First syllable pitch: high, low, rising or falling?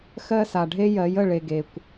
high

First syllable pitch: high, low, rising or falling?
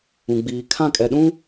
low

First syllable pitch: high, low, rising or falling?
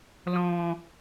low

